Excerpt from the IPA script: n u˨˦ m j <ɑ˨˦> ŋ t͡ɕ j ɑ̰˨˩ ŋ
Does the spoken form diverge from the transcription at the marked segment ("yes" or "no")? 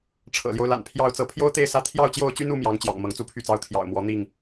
no